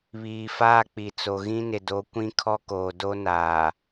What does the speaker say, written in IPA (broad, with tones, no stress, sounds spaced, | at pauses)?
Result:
β iː˨ f aː˦ k͡p i˨ t͡s o˨ ɣ ĩ˦ n ɪ˨ d o˨˦ kʷ ĩ˦ kʰ ɔ˦ k oː˨ d o˦ n aː˨